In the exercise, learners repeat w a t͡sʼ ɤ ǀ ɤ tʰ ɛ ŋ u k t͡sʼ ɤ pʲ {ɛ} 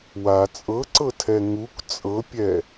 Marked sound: correct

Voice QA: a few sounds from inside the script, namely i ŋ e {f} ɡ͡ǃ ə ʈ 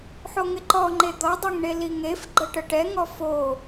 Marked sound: correct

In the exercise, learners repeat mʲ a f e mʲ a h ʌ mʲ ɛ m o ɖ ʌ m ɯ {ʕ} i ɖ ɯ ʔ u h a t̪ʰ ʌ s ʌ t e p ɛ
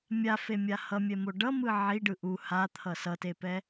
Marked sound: correct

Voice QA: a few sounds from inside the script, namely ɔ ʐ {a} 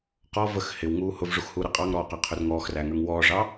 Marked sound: incorrect: ɑ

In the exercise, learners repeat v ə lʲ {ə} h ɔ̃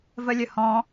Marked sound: correct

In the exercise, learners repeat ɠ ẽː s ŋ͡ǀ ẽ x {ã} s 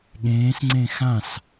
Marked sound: correct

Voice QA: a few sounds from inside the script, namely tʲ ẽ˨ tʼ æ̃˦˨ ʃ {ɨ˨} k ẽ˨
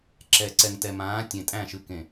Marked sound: correct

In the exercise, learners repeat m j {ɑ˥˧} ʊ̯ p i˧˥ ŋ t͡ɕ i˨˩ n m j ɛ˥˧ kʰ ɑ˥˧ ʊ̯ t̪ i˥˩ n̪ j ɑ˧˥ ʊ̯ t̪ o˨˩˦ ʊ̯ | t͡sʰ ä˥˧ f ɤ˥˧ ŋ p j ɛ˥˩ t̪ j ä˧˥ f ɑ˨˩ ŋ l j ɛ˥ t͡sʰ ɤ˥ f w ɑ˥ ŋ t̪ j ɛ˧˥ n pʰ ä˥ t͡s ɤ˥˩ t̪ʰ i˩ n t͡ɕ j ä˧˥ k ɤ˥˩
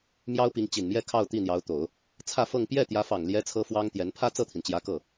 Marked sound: incorrect: ɑ˥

